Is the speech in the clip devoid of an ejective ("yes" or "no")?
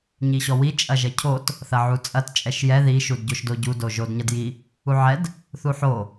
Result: no